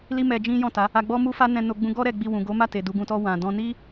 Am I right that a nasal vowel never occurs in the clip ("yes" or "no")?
no